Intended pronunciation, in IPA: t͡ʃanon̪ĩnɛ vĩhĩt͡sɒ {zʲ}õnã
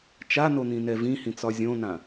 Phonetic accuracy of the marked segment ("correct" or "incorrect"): correct